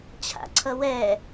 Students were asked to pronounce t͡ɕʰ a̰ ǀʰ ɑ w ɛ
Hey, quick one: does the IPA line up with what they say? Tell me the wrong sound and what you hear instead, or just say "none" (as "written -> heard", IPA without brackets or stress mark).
ɑ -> ʌ